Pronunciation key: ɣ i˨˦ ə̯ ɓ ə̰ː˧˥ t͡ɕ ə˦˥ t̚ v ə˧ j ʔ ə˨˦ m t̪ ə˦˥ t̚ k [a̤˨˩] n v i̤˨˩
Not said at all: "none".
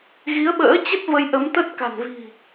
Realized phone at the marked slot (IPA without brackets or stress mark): a̤˨˩